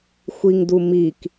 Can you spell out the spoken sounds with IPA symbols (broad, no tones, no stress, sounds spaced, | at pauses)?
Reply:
xʷ i ŋ d u m i k